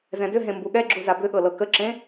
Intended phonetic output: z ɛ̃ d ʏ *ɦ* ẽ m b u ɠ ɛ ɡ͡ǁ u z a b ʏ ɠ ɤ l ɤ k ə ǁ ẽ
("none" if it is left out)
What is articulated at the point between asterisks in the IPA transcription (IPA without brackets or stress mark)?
ɦ